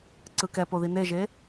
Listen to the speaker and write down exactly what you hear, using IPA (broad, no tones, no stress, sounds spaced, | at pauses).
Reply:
ǀ ɯ k ɛ p o ð i n e ʒ e